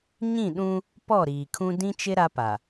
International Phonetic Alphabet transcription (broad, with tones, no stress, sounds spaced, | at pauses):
ɲ ĩ˦˨ ɗ ũ˦ | p ɔ˦˨ ɾ iː˨ kʰ ũ˦ d ĩ˦ t͡ʃ ɪ˦ ɾ a˦ p a˨